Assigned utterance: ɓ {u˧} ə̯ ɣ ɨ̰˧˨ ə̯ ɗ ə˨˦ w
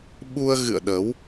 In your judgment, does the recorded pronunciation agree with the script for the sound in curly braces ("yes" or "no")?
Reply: yes